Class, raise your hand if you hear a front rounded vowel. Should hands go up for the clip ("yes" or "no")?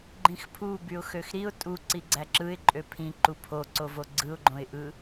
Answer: yes